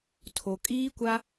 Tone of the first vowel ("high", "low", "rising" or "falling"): low